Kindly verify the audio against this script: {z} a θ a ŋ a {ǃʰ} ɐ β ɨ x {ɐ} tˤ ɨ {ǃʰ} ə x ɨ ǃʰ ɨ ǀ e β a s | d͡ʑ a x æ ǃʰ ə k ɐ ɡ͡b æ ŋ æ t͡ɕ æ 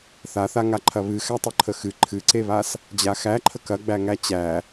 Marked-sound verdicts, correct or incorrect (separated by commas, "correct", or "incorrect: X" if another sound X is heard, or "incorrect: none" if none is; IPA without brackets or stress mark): incorrect: θ, correct, incorrect: æ, correct